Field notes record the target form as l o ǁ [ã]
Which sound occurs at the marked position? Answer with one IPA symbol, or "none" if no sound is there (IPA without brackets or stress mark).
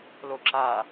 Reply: a